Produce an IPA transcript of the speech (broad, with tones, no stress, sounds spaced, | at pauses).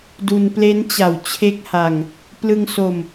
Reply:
d u˧ n p l e˦˥ n t͡ɕ a˨˩ w t͡ɕʰ e˦˥ k̚ h a˧ ŋ | p l ɯ˧ ŋ s o˧ m